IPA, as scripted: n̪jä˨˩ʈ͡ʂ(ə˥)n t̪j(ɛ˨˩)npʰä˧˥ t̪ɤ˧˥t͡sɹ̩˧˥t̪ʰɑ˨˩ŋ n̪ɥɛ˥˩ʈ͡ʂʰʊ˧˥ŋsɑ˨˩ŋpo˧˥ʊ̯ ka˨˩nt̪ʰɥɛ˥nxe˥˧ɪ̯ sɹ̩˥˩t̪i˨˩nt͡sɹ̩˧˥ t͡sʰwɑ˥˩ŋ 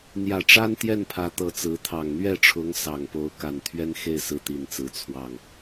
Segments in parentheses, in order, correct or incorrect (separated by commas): incorrect, incorrect